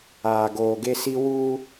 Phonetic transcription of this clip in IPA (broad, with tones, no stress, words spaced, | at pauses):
aː˨ɡoː˨ɡe˦si˦ wuː˦